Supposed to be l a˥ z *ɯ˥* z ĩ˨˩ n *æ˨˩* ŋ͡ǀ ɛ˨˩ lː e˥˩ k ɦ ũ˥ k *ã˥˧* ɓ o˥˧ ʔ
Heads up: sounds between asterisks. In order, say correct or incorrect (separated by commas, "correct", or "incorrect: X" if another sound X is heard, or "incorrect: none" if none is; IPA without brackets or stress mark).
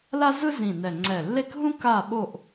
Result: correct, incorrect: ɛ˨˩, incorrect: a˥˧